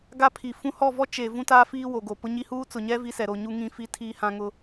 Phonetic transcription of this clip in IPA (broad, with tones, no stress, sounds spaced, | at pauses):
ɡ a˦ pʰ i˨ f ũ˦ h ɔ˦˨ v ɔ˦ t͡ʃ e˨ v ũ˦ t aː˦ f iː˦ w o˨ ɡ o˨ p ʊ˦ ɲ i˦ h uː˦ t͡s ʊ˨ ɲ ɛ˦ v i˦ s ɛ˨ ɾ o˨ ɲ u˦ ŋ ĩ˨ f i˨˦ tʰ iː˦ h ã˦ ŋ ʊ˦